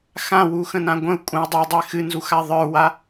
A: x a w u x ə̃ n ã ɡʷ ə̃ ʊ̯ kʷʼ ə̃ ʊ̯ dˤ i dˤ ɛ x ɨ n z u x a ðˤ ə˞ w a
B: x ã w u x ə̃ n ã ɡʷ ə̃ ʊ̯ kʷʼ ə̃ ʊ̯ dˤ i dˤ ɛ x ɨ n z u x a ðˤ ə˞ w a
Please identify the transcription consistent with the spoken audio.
B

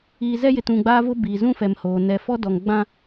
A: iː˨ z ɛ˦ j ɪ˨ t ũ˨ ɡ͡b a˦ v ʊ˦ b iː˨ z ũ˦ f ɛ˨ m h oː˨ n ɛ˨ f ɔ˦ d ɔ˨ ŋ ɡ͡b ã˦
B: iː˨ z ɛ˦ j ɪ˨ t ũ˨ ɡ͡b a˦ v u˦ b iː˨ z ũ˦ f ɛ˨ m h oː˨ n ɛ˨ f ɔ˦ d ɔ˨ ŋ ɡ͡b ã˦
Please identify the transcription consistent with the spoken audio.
A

